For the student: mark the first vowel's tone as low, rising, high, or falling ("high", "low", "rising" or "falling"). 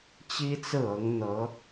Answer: high